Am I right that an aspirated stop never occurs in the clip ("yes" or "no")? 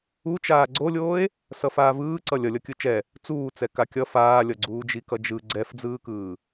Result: yes